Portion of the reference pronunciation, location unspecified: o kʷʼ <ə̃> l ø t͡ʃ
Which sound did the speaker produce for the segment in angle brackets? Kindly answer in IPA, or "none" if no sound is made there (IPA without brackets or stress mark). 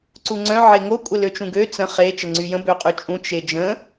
ə